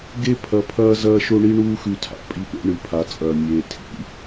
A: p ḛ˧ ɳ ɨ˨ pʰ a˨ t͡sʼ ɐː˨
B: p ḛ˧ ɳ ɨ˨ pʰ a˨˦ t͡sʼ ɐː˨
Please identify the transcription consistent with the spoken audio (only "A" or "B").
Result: B